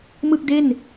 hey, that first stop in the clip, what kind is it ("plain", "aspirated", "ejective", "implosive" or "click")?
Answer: plain